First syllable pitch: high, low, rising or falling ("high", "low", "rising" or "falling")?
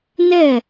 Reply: falling